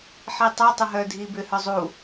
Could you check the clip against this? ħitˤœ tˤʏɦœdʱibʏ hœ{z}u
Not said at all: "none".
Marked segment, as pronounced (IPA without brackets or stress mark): zˤ